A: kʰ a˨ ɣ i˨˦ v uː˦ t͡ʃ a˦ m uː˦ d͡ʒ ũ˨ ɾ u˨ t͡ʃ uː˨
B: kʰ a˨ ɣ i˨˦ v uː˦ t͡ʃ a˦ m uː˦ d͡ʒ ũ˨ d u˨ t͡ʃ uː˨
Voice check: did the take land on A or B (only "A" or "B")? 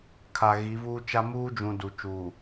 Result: B